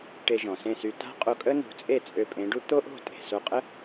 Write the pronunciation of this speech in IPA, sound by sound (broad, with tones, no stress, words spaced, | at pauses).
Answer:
ʈe˧ʒɔ̃˩sẽ˥˩sy˧ ta̤˥qʼo˧kʼə˥ nṳ˩˥t͡sʼe˥˩ t͡sʼø˧pʼẽ˩˥ɖu˥ t̪o˥ʔo̤˥˩ tʼe̤˩ so˧qʼə˥